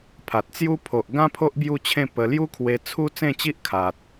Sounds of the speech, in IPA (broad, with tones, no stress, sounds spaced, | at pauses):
pʰ a˨ t̚ t͡s j u˦ pʰ o˨ ʔ ɡ ã˦ pʰ o˦ ʔ b j u˥˧ t͡ɕʰ ẽ˥˧ p ə˧ l j u˦ kʰ w e˧ t͡sʰ u˦ t͡s ẽ˥˧ t͡ɕ i˦ ʔ kʰ a˨ t̚